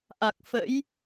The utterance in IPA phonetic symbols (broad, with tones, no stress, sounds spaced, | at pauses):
ʔ a˨˩ k̚ f ə̰˧˥ j